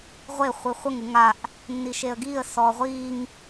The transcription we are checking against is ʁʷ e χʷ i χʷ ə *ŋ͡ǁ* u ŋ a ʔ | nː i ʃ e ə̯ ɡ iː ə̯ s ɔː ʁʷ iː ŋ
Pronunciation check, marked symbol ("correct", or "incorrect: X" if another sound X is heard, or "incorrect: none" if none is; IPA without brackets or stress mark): incorrect: ŋ